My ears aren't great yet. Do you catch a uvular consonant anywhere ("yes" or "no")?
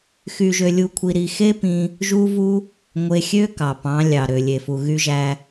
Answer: no